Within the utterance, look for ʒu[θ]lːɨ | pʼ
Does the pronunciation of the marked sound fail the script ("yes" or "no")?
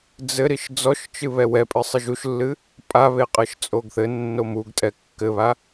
yes